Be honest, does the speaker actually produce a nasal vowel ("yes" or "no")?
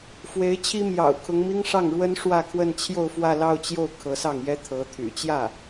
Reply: no